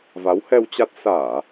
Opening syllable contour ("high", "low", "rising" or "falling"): rising